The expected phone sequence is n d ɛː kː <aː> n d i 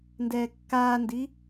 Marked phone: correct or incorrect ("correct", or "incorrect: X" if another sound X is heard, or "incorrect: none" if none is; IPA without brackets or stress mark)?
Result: correct